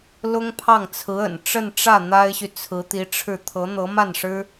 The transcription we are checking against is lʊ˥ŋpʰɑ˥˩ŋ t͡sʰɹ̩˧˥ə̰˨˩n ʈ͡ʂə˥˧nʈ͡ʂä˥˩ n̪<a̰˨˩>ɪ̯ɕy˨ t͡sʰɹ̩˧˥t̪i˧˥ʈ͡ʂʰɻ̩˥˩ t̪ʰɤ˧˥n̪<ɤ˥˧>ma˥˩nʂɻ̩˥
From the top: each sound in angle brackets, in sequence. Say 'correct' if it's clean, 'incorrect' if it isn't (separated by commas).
incorrect, incorrect